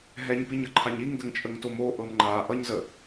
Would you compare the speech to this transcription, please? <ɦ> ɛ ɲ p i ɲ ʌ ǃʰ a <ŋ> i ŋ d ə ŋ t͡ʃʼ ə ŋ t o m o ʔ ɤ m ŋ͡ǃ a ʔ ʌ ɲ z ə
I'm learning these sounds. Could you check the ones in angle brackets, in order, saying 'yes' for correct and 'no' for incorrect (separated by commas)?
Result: yes, no